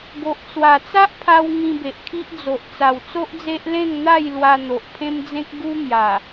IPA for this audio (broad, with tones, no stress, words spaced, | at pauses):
ɡo˨ʔt͡swa˨˩ t͡sa˦ʔpʰa˧w ŋĩ˧be˨ʔkʰi˦ʔd͡zo˨ʔ t͡sa˨˩wt͡so˦ʔd͡ze˦ʔ lẽ˥˧ŋn̪a˥˧j lwa˧n̪o˨ʔpʰẽ˦md͡zẽ˦k̚ ɡu˦mja˨˩